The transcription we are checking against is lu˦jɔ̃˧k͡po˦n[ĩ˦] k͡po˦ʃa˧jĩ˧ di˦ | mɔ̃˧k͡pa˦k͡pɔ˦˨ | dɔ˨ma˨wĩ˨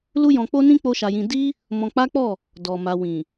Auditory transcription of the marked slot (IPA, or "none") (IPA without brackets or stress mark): ĩ˦